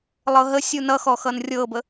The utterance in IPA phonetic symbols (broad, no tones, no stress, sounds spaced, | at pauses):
lˠ ɤ ɦ ə sʲ u n ʌ x ɔ x ʌ n rʲ ɤ b ə